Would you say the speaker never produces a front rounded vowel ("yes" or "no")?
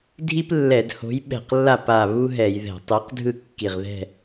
yes